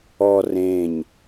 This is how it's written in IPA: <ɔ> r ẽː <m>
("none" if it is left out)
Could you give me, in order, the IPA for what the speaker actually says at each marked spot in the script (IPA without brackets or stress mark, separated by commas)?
ɔ, ɲ